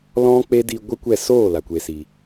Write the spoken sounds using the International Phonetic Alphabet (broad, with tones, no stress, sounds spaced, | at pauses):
l ɔ̃˦ k͡p e˦ d i˧ ɡʷ ɨ˦ kʷ ɛ˦˨ s oː˦˨ l a˨ kʷ e˨ s iː˨